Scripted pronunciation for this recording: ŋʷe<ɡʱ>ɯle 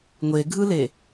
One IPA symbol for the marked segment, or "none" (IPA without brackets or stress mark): ɡʱ